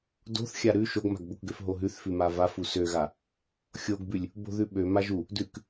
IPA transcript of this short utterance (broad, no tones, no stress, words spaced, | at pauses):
do̤θ xʲaɾʉ ʃoɡma̤ɡbokɡøf ɦoɦʉθfʉ mavaf usøɣa | xʲoɡbʉlʲ | bo̤ðʉɓø maʒu | dʉk